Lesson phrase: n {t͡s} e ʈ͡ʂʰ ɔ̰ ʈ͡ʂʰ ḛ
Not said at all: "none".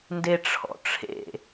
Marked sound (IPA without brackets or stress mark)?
d